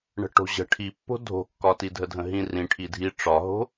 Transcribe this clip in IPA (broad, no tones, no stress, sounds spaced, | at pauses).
ɳ ə̤ ʈ o̤ ʑ ə̤ ʈʰ i pː o̤ dʱ o̤ kː ɒ t i dʱ ə dʱ ə̃ ɦ ĩ r ĩ ʈʰ i dʱ i ʈ͡ʂ ɒ ɦ o̤